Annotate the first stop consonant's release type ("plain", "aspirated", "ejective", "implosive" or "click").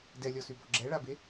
plain